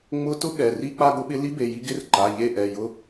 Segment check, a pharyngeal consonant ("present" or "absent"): absent